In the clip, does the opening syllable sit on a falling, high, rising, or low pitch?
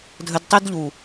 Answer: low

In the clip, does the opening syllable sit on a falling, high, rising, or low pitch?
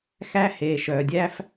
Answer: high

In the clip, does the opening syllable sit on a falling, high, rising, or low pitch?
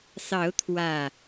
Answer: rising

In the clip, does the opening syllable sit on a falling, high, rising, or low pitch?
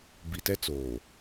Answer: low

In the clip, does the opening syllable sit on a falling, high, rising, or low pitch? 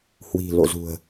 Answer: low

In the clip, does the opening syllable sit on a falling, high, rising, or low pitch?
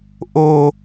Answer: high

